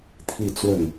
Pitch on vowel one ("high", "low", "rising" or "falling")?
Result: falling